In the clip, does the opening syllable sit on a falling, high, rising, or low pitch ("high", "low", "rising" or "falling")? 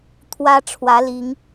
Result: high